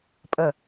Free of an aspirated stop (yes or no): yes